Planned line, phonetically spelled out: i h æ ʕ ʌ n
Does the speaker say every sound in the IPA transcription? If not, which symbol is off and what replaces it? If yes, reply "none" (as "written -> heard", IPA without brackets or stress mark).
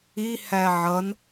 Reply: none